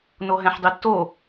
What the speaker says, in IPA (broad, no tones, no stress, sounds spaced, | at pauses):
n o ɦ ɛ̃ ħ dˤ i tː o